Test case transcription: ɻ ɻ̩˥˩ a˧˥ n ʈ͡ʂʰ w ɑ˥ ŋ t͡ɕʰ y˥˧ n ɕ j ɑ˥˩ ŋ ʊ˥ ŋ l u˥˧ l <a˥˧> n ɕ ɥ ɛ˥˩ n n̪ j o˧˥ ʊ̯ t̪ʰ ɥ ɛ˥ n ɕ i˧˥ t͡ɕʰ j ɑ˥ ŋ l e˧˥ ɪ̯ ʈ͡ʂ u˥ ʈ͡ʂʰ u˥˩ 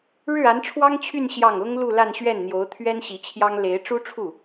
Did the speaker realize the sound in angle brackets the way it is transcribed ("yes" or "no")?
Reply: yes